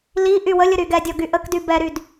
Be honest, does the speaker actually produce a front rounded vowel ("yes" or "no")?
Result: yes